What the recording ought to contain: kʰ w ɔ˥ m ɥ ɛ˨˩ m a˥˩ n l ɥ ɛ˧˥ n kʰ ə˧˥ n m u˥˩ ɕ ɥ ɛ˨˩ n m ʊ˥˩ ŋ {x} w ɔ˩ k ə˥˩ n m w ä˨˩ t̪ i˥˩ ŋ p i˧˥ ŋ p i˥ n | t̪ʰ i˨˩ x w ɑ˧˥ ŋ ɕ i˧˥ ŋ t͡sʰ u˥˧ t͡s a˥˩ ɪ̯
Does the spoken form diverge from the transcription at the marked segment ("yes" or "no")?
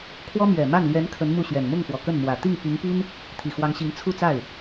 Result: no